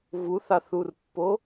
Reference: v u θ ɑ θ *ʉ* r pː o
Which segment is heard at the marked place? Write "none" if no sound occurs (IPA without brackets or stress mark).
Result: u